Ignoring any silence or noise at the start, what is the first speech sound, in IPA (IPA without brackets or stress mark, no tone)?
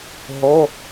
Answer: ɦ